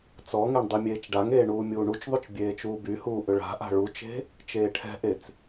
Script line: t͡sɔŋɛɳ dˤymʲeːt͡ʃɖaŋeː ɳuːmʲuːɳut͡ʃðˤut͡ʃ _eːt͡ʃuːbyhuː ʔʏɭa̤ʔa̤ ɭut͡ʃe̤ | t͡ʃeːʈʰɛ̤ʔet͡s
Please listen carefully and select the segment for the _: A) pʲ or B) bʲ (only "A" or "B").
B